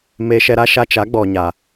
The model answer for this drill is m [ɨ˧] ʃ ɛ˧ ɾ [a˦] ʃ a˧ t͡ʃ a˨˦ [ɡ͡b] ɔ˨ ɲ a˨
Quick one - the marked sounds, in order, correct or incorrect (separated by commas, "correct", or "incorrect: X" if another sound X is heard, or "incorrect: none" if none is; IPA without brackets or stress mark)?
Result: incorrect: e˧, correct, correct